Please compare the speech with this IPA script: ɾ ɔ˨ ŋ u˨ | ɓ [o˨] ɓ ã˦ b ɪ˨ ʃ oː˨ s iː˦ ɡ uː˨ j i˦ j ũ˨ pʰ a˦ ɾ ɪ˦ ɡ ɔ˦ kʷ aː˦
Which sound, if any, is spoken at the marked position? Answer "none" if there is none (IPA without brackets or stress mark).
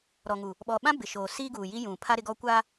ɔ˨